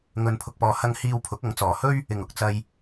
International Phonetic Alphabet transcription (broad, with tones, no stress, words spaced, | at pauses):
ŋɵ˨n pʰʊ˨k̚pɔː˨hɐ˧ŋ hiː˧wpʰʊ˨˥k̚ɐ˨˥ŋ t͡sɔː˨˩hɵ˥ɥ | ɪ˨˩ŋʊ˨k̚t͡sɐ˨j